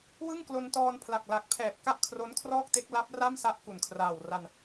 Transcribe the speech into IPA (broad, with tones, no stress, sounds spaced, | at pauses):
w ɯ˥˩ ŋ k l o˧ n t ɔː˧ n pʰ l a˨˩ k̚ l a˨˩ k̚ pʰ ɛː˨˩ p̚ k a˥˩ ʔ kʰ r o˦˥ n kʰ r ɔː˥˩ k̚ t e˦˥ k̚ l a˦˥ p̚ r a˥˩ m s a˦˥ ʔ k u˨˩ n kʰ r aː˨˩ w r a˧ n